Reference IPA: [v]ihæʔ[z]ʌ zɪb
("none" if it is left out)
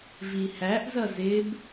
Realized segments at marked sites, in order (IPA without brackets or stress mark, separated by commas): v, z